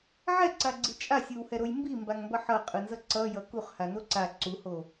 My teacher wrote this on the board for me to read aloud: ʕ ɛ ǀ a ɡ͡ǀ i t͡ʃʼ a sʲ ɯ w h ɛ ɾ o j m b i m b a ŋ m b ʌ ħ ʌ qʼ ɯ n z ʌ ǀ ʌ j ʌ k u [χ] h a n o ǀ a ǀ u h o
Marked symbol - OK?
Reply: yes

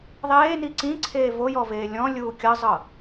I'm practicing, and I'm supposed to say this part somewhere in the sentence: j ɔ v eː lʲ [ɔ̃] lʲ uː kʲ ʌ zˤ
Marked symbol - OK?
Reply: yes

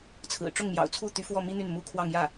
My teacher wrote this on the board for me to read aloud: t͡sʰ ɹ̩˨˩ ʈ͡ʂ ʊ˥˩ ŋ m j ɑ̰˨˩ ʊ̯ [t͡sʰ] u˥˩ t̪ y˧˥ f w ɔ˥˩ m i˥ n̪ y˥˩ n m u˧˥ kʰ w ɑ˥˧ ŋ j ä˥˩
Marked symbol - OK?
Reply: yes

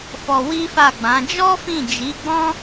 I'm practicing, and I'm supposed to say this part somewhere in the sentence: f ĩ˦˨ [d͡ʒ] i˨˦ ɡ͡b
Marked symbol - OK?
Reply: yes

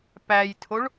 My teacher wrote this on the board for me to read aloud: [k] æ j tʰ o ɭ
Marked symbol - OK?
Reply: no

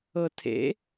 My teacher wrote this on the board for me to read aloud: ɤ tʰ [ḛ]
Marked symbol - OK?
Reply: yes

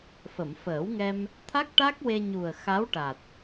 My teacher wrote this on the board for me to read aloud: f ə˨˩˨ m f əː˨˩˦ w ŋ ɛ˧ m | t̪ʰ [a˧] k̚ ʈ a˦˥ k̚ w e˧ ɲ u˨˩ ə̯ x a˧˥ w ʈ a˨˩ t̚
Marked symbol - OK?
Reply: no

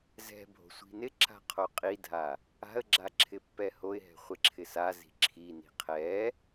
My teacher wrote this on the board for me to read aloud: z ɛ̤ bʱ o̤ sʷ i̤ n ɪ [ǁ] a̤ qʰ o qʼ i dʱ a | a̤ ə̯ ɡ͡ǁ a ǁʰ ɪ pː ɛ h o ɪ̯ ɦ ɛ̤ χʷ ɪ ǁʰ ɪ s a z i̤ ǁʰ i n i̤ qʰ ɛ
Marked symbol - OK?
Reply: yes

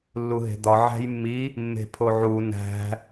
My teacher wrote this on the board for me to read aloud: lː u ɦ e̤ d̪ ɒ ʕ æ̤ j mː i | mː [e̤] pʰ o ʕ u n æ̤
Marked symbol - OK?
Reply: yes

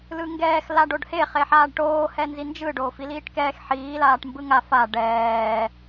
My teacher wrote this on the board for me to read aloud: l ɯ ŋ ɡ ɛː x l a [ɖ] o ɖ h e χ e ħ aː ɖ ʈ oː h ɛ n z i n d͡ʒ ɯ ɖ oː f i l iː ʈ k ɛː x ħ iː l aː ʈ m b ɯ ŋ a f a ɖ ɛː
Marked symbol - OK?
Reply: yes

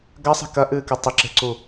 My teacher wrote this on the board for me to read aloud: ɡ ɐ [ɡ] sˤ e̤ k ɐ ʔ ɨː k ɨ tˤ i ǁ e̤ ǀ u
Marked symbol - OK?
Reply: no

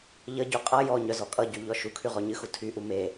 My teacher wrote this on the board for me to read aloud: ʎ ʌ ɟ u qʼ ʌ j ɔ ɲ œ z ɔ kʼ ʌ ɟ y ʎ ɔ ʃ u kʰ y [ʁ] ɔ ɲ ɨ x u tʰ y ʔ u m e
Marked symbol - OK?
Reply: yes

